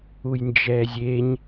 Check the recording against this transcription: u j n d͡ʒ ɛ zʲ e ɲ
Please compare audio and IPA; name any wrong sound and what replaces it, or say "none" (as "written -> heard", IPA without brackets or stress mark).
none